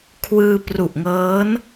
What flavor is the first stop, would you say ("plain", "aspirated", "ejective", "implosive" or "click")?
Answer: aspirated